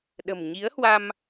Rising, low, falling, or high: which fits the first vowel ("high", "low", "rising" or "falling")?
low